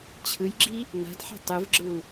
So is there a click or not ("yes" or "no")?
yes